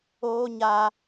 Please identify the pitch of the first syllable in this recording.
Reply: high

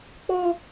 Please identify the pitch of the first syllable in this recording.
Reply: high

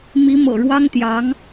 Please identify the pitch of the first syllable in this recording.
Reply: rising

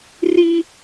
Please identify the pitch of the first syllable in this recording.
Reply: high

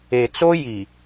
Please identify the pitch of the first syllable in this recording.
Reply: low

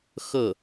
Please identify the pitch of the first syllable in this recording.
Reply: falling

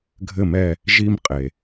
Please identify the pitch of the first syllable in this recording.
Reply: falling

